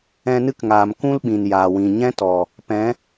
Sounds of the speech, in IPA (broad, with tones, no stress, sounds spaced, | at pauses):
ɛ̃˧ n ɨ˦ k ŋ aː˨ m k ũ˦ l ɓ ĩ˨ n j aː˨ w ĩ˨ ɲ ɛ̃˦ t ɔ˨ | p ɛ̃˨˦